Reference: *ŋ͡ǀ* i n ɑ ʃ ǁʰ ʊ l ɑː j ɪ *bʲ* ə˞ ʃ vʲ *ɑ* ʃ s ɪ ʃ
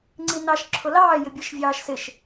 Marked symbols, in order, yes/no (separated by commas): yes, yes, no